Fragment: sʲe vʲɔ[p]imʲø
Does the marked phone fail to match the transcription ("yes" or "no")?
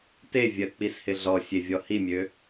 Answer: yes